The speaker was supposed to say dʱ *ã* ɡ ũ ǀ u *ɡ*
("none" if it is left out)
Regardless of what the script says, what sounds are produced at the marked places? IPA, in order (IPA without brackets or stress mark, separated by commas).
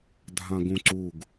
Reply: ã, ɡ